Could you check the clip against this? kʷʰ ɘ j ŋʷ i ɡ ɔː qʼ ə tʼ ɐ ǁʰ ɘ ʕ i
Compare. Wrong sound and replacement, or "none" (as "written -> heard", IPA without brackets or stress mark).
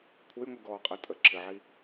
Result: ɐ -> ə